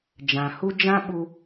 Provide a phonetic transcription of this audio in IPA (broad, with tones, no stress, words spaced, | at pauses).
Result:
d͡ʒã˨ hu˦ d͡ʒã˦ ɓu˧